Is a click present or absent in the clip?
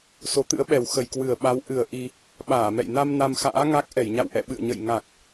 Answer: absent